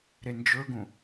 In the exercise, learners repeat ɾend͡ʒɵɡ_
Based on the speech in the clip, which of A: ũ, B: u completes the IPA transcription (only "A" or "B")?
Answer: A